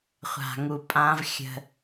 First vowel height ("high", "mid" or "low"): low